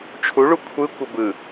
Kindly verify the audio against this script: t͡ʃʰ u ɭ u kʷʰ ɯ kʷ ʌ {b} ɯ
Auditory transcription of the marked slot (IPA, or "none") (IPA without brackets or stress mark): b